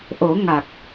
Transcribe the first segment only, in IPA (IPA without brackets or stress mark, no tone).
ʔ